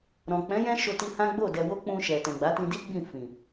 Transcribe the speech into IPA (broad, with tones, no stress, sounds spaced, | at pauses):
ɾ ɔ̃˨ k͡p ɛ̃˨˦ j ɛ̃˦ ʃ o˧ t i˧ h ã˦ ɡ͡b o˦˨ d ɛ˧ w o˦ k͡p ũ˧ ʃ ɛ˨ t ɛ̃˨ ɡ͡b a˨˦ t ĩ˧ d i˦ ɡ͡b ĩ˦˨ f ĩ˨